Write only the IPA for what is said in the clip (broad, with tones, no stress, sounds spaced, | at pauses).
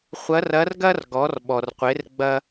χʷ ɐ˧˥ r ɐ˧˥ r ɡ ɐ˥ r ɡ ɔ˩˧ r ɓ ɔ˩ r qʷ e˩˧ r ɡ͡b ɐ˧